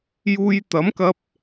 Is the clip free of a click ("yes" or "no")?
yes